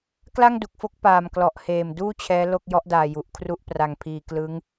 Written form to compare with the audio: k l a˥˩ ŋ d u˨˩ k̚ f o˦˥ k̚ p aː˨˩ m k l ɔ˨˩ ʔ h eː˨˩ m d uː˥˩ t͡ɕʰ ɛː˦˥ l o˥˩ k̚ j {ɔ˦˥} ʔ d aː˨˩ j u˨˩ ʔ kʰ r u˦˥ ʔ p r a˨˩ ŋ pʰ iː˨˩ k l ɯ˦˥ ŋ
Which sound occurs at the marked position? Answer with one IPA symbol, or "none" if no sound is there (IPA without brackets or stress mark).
ɔ˦˥